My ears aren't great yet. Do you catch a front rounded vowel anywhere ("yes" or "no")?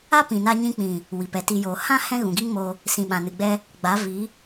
no